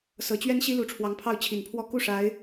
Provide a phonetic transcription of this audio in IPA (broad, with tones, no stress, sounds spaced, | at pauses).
s ɤ˨˩ t͡ɕ ɥ ɛ˥ n ɕ i˥ l u˧˥ ʈ͡ʂʰ w ɑ˧˥ ŋ pʰ ɑ˥˩ ʊ̯ t͡ɕʰ i˨˩ n pʰ w ɔ˥˧ k u˥˩ ʂ a˧˥ ɪ̯